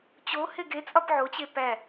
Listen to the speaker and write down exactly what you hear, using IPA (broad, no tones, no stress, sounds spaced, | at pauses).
t͡ɕ o h e ɡ e t͡sʼ ɒ p ʕ o t͡ɕ e p æ